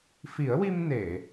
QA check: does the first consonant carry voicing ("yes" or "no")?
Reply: no